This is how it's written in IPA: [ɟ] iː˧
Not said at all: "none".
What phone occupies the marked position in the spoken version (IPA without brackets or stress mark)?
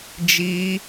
d͡ʒ